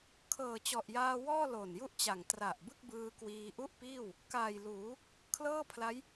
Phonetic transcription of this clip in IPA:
kʰɤː˨˩t͡ɕɔ˨˩ʔjaː˧wɔː˥˩ lo˨˩nju˥˩ʔt͡ɕa˨˩ŋ tra˨˩ʔ bɯ˥˩k̚bɯː˧kwiː˧ ʔu˥˩ʔpiː˥˩w | kaː˨˩jluː˩˦ | kʰlɤː˥˩pʰla˦˥j

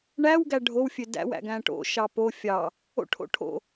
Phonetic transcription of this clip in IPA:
ɳæwɡæ ɖʱowfʲø dæ̰wæ̰ ɡæ̃ʈo̰ ʃɑpo fʲɑ | o̰ʈʰo̰ ʈʰo̰

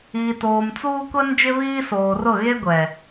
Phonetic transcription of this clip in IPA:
iː˨toː˨mt͡suː˦ kʷɛ˦nd͡ʒɪ˦βiː˦ soː˨rʊ˦˨ ɣe˦ɡʷɛ˨

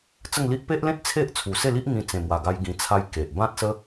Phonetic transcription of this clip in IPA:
t͡sə˥˧ŋli˦ʔ pe˦ʔlẽ˦t̚ t͡sʰe˦ʔ t͡sʰu˨˩se˥˧li˦ʔ ŋĩ˧t͡sẽ˨˩mwa˨˩ɡa˧j ɡĩ˧t͡sʰa˦j ke˨ʔ bã˦t̚sə˦

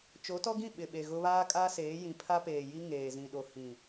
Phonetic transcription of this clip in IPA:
t͡ʃo˨˦tɔ˦ɡĩ˦˨ ɓɪ˨ɓe˨ɣʊ˦ βaː˦kʼa˦seː˨˦ jĩ˨pʰa˦peː˨ji˦ ŋeː˨zĩ˨ɗo˨ hĩ˨

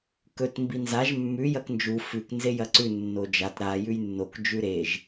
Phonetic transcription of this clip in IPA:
kɵt mbinzaʒ mːʉ jɐknd͡ʒu fʉk nzejɐǀʉ nːod͡ʒat ɾa jʉjnːok d͡ʒʉɾeʒ

